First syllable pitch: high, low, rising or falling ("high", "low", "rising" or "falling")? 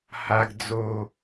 low